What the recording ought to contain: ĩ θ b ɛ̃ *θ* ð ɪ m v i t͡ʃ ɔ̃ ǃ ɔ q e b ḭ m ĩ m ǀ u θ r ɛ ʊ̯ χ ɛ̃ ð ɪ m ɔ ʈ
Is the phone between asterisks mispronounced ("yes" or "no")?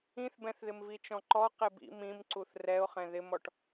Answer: no